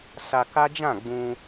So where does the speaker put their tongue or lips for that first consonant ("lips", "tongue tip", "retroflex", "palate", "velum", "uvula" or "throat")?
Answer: tongue tip